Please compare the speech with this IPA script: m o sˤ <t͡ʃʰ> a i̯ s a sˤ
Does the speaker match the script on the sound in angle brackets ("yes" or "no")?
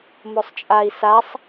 no